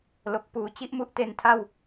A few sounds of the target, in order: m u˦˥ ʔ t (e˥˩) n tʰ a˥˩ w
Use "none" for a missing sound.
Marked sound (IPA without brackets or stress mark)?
e˧